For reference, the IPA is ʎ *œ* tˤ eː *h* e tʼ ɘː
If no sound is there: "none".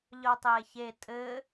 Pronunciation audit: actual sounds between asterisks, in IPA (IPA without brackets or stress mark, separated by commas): œ, ç